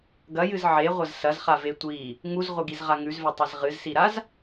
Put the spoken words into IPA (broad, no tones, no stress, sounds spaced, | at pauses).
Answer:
ɡ ɐ j ɨ z ʕ e ʁʷ ɐ z s ɐ z χ a v e tʷ i | ŋ u z ʁʷ ɨ ɡ i z ʁ a ŋ ʉ z v e tˤ e z ʁ ɨ z s i ɾ a z